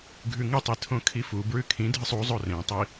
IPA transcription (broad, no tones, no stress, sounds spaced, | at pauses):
ɡʱ ʉ ŋ ɨ tˤ i tʰ õ kʰ i f u b ɹ ʉ kʰ ĩ dʱ ɨ sˤ u zˤ o r ẽ tˤ i